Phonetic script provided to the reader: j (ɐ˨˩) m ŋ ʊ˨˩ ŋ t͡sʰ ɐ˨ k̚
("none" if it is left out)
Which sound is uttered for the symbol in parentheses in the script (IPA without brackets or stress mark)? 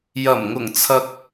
ɐ˨˩